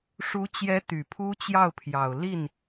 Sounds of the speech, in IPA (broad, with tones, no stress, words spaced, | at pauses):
ʂu˧˥t͡ɕjɛ˧˥ t̪y˨˩pʰu˥t͡ɕjɑ˥˩ʊ̯pʰjɑ˨˩ʊ̯ li˥˩n